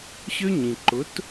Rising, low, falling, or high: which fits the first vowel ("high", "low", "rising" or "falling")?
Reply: high